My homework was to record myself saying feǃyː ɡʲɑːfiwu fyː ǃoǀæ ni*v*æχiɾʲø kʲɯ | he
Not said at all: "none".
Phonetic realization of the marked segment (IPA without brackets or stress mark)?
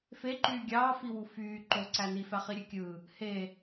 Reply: f